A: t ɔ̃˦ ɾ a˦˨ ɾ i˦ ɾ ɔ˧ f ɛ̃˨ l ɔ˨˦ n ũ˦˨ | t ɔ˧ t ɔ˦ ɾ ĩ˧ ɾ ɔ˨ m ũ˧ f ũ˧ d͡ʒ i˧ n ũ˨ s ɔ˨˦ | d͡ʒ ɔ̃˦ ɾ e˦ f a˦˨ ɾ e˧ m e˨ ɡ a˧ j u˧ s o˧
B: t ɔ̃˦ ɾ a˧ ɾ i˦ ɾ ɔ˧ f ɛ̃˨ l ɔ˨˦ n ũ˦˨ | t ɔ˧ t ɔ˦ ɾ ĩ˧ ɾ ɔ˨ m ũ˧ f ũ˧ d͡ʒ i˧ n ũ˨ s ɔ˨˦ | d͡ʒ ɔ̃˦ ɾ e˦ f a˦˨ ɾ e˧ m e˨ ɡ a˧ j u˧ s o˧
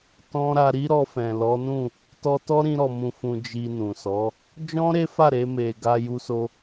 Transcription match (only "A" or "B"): B